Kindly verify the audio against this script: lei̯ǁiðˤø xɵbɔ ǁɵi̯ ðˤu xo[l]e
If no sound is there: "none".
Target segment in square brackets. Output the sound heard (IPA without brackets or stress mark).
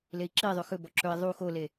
l